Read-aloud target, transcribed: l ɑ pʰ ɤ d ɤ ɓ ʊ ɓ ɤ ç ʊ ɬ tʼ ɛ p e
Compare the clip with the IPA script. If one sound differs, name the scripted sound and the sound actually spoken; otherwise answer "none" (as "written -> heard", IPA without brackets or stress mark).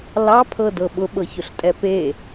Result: none